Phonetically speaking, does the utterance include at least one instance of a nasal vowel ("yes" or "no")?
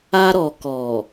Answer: no